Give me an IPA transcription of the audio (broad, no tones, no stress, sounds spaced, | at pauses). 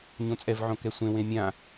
ɲ õ t͡sʼ ɛ v ʕ õ k ɛ sʷ ẽ w ẽ mʲ ã